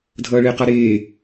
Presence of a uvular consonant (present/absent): present